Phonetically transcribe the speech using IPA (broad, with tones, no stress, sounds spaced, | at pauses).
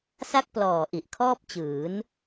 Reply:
s a˥˩ k̚ p l ɔː˨˩ ʔ i˨˩ ʔ kʰ ɔː˥˩ p̚ t͡ɕ ɯː˩˦ n